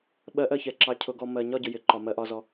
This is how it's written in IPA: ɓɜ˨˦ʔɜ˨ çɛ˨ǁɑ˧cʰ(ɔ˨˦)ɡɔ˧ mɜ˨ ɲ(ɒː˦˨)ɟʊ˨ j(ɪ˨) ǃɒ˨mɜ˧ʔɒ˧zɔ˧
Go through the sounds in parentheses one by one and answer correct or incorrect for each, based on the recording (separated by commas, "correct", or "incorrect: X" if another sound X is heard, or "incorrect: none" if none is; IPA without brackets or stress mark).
incorrect: ʊ˨˦, incorrect: ɒ˦˨, correct